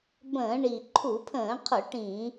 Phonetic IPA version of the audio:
bə̃ː˧˩˧ɳi˨˩ ǃʰu˧˩˧pʰə̃ː˧˩˧qʰʊ˧˩˧ ʈĩ˧˩˧

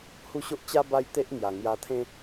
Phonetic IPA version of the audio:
hu˦ɕo˦ʔ t͡ɕa˦ ba˦jt̪e˦ʔ ŋja˨˩ŋja˧t̪ʰẽ˦

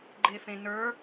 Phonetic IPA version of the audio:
ɡ͡ǃefẽnə˞

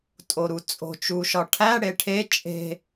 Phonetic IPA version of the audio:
tʼoɾut͡sʼo̤ t͡ʃuʃɒʈʰæ ɽeʈʰe t͡ʃʼe̤

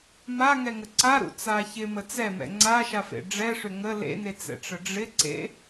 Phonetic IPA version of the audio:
maŋɛŋə ǀaɾṵt͡sa çɪmə t͡sɛmɛ̰ ŋ͡ǀaʃafḛ ɖ͡ʐɛʂʏ ŋə lḛnet͡sɛ̰ʈ͡ʂə ɖ͡ʐɪǀḛ

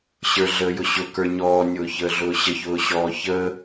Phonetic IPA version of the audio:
ɕə˞ɮəːjʊ ɕʊkə˞ ɲɔːnʲʊːçəːɮʊː ɕəçʊːɕɔː çəː

